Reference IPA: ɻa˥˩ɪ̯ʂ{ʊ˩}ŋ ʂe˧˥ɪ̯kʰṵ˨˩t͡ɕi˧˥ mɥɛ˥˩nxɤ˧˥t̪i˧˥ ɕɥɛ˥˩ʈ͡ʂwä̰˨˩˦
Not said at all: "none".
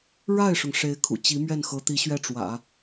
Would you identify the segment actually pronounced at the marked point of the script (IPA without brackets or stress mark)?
ʊ˩